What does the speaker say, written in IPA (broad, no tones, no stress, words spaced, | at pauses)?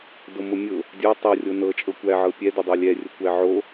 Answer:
domʊmʲʊ | dʲə˞ tˤo rʲonɤt͡ʃʼɤ kʷæʕɤ pʲɛdʊdˤə˞ lʲɛrʲʊ kʷæʕo